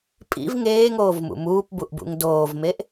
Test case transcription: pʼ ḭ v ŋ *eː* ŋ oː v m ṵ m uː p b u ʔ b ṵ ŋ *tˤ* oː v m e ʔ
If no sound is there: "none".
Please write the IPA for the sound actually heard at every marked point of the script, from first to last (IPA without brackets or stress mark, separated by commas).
eː, d